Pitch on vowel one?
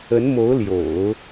rising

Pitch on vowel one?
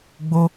high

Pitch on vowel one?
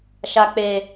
low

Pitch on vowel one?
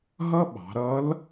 high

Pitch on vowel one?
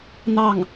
falling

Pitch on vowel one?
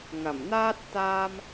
low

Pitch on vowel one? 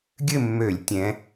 falling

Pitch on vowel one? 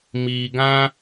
low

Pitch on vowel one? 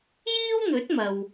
high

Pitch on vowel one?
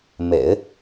low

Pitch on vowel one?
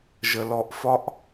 high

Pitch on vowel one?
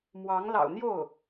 rising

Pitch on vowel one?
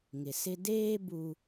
low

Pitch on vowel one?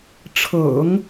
low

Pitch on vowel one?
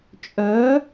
rising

